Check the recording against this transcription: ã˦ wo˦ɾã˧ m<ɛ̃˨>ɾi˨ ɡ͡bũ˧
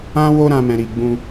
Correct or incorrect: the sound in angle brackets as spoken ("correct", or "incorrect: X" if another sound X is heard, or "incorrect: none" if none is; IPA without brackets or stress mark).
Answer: correct